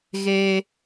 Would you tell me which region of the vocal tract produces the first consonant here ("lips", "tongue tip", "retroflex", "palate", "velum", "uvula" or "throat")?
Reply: velum